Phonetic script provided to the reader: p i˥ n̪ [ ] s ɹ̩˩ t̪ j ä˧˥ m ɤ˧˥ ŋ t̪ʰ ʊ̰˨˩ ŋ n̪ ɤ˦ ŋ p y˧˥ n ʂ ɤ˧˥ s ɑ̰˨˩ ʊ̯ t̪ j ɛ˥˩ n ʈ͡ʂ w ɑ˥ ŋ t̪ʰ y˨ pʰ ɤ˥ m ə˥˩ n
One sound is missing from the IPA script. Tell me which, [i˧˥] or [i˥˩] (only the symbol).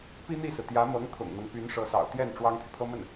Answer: i˥˩